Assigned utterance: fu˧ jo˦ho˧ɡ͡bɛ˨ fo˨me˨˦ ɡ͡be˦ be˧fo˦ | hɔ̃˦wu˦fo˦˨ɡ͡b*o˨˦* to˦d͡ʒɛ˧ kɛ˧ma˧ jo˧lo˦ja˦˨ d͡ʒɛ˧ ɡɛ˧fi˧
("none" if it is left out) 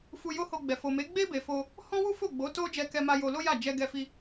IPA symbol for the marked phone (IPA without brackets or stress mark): o˨˦